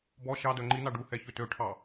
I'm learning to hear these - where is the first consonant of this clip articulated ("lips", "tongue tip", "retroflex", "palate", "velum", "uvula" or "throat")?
lips